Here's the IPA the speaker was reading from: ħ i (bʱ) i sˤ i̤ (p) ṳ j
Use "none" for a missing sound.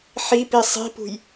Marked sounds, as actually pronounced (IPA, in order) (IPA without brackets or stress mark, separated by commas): p, p